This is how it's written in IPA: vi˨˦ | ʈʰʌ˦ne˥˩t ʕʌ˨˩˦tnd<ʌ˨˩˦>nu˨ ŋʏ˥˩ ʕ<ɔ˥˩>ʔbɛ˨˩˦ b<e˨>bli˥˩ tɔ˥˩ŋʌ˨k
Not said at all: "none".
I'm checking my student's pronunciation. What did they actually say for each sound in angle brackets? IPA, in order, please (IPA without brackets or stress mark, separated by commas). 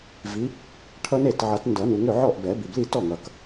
ʌ˨˩˦, ɔ˥˩, i˨